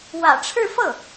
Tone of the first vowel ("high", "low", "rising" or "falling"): low